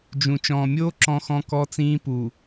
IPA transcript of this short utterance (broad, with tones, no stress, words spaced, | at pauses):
d͡ʒũ˨ t͡ʃɔ̃ː˨mʲoː˦ ǁɔ̃˦xɔ̃˦kɔ˦t͡sĩː˦ pu˨